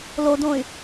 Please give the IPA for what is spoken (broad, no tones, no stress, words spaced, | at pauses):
lodõy̯